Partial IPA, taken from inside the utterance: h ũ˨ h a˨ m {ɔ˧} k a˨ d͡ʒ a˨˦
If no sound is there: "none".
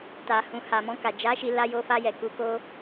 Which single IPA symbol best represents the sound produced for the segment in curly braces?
ɔ̃˧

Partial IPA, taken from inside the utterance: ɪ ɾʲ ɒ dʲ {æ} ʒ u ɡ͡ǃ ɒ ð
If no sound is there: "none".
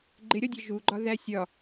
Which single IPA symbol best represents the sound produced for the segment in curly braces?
ɛ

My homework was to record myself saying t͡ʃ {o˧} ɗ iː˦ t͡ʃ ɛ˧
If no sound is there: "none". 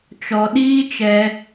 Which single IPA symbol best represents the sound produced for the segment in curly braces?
ɔ˧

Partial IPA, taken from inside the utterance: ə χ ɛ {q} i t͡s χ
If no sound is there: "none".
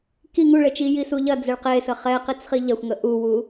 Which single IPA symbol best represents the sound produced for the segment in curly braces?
q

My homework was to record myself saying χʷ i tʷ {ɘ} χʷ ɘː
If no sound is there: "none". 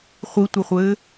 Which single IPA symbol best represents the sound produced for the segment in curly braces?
ɘ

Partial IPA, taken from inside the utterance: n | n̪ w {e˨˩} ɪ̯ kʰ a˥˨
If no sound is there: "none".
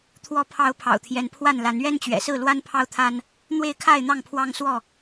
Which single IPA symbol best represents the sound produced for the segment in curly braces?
e˥˨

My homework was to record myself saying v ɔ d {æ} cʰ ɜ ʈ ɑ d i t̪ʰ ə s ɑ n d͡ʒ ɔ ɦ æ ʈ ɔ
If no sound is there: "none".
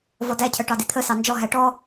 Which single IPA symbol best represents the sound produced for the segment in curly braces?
æ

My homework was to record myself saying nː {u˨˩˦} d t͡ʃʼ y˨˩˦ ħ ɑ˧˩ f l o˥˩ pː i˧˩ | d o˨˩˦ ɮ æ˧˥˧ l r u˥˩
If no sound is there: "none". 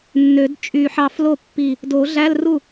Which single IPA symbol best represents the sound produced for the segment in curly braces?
ø˨˩˦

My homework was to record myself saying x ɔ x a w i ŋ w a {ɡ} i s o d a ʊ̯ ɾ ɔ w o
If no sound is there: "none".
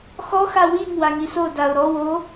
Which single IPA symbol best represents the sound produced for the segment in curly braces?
ŋ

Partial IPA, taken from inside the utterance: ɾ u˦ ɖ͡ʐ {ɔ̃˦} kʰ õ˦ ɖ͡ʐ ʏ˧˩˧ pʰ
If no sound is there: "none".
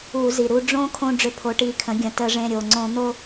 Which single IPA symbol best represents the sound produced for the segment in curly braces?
õ˦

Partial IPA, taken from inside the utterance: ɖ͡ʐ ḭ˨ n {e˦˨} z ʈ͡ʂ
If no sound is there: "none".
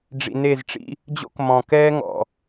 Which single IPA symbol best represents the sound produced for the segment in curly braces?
e˦˨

